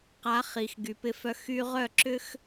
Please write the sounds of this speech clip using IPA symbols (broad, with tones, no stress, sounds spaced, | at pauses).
q a˨˦ χ i˨ x ɡ y˨ p ɪ˧ f œ˧ x y˧ ʁ œ˦˨ ǁ ʏ˦ x